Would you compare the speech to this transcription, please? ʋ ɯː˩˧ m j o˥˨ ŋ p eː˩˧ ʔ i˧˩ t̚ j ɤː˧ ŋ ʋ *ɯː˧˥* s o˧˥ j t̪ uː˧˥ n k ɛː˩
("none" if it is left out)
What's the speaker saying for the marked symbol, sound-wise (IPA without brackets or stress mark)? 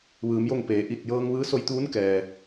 ɯː˧˥